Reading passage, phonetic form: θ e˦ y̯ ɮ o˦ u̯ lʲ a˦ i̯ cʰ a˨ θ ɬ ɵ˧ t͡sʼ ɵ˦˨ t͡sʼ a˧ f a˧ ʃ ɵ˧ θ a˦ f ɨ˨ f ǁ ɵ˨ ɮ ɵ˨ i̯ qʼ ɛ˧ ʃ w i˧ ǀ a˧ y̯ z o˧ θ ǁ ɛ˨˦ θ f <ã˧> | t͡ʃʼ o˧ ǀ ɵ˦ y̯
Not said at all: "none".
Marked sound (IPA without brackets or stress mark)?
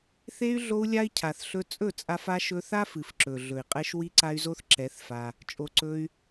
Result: a˧